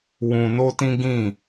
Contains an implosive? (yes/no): no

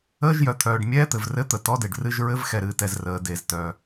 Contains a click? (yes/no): no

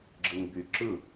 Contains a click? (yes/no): yes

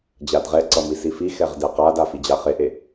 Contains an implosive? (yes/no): no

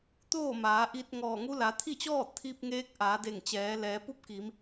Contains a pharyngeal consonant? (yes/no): no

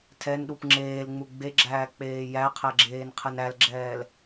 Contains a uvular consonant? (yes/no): yes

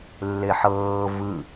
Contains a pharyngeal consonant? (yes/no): yes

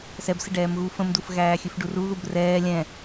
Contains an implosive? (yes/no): no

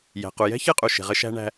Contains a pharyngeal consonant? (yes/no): no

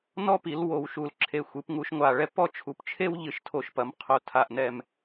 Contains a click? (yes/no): yes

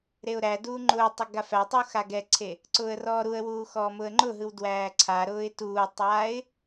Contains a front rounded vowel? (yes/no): no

